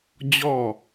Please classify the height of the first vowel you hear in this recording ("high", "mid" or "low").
mid